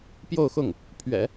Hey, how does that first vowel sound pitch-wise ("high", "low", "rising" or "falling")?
falling